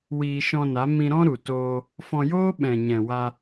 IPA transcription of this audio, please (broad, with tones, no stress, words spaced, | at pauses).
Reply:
wiː˧ʃɔ̃˧na˨˦ mĩ˧ɾɔ̃˦ɾu˨toː˧ | fɔ̃˧joː˦ ɓɛ̃˨ɲɛ̃˨wa˧